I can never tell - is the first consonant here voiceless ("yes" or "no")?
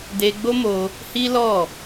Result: no